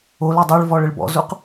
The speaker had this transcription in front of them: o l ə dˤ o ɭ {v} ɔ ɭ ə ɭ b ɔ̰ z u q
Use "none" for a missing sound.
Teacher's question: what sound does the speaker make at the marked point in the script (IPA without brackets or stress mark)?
v